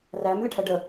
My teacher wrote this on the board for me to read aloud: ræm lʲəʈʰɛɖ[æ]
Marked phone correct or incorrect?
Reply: incorrect